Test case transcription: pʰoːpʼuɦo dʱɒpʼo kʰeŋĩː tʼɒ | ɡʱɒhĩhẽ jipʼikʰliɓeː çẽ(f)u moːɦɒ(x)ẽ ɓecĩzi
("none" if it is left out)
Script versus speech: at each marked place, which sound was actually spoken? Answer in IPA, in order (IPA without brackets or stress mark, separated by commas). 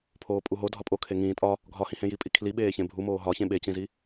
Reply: bʱ, ç